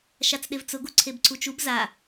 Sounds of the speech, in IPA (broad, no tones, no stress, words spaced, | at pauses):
ʃat͡sɗevt͡sʊɡ uǀʰebǀʰut͡ʃub za